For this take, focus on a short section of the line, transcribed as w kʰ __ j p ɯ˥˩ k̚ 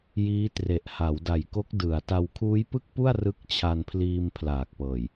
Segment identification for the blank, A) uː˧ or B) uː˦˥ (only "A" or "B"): B